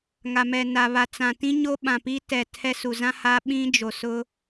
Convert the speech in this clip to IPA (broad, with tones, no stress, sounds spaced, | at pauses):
ŋ a˨ m ɛ˨ n a˨ β a˨ t͡s ã˨ t ĩ˦ ɲ o˦ ɓ ã˨ p i˦ t ɛ˨ tʰ ɛ˦ s u˨ z ã˦ h aː˦ ɓ ĩ˦ d͡ʒ o˨ s ʊ˦